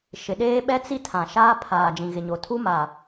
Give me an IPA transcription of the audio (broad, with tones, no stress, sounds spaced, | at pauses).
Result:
ʃ ɪ˨ ɗ eː˦ ɓ ɛ˦ t͡s i˦ tʰ ã˨ ʃ aː˦ pʰ aː˨ d͡ʒ ĩ˨ ɣ ɪ˨ ɲ o˨ tʰ u˦ m a˨